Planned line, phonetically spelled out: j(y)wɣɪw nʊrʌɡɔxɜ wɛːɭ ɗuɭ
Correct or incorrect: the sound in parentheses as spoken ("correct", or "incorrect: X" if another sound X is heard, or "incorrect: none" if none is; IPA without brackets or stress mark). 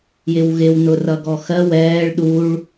incorrect: ɪ